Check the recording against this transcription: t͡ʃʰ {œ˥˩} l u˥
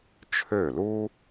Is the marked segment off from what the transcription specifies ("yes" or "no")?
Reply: yes